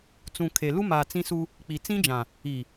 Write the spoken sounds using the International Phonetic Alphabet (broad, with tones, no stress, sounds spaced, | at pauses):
t͡s ũ˨ kʰ e˨ l u˦ m a˨ t͡s ĩ˦ s u˦ | k͡p i˨ t͡s ĩ˦ d͡ʒ ã˨ | i˨